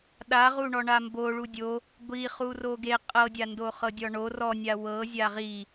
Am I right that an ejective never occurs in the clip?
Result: no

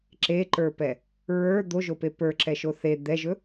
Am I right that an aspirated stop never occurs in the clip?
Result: yes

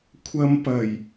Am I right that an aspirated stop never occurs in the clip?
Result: no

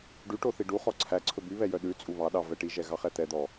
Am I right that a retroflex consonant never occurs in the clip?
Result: no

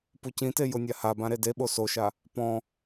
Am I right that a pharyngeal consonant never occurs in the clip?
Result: yes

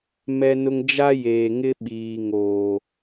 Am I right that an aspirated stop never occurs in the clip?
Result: yes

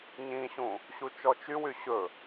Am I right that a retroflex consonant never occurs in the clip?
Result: yes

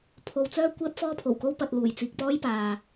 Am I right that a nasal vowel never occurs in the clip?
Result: yes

